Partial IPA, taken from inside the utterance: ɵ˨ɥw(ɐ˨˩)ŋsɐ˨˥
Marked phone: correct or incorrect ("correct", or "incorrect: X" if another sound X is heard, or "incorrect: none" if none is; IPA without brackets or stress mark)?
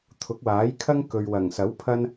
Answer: correct